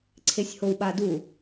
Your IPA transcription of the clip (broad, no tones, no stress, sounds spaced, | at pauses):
ǀʰ e sʲ h o w ɓ a d u